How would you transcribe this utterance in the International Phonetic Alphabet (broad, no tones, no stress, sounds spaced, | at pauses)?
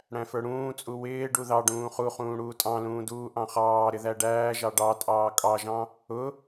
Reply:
ɽ æ̃ f ə˞ ɽ ũː t͡sʼ u w ɪː ɖ u ð ɑ ɖ ũː χ u χ ũː ɽ uː tʼ ɑ̃ l ũː d uː ʔ ɑ̃ χ ɑː ɾ ɪ ð æ ɖ æː ʒ ɑ ɖ ɑ tʼ ɑː kʼ ɑ ʒ ɑ̃ | ʊ